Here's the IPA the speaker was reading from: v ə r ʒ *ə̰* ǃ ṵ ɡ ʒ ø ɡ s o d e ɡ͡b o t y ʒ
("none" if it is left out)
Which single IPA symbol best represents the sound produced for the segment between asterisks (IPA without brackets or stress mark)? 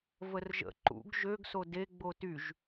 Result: ə̰